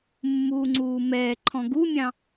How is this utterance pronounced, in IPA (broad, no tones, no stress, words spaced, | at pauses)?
mːuːŋ͡ǀuːmɛː ǃʰɔ̃ɡumʲɑ̃